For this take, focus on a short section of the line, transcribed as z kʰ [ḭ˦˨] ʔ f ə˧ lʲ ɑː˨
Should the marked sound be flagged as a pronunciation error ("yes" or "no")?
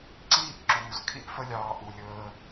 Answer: yes